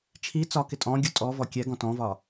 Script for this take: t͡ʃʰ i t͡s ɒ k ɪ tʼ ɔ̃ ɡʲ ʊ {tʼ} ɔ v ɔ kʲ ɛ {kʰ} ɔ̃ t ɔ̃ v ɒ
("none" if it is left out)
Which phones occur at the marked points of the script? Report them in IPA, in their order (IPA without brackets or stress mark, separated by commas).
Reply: tʼ, ɡ